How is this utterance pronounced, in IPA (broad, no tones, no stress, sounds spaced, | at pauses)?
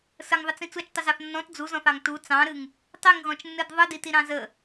s ə ŋ ðˤ ɪ t͡s ĩ t͡s u t͡ʃ tˤ ʊ z ɑ θ nː ɔ̃ t d͡z u z ɔ̃ θ ɑ ŋ t u t͡s ɑ̃ ɾ ɨ ŋ | tˤ i ŋ ɣ ɔ̃ t͡ʃ nː ɨ d ðˤ ɨ d i t i ɾ ɑ̃ z ə